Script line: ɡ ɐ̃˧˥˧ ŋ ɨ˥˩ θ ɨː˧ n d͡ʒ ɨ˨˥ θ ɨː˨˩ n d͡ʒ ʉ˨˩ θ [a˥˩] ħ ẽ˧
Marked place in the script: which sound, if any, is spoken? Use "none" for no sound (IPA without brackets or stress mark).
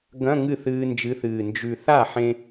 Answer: a˥˩